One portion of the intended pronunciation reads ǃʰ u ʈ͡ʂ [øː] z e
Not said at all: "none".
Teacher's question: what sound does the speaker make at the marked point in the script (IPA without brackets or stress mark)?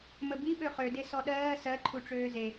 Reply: øː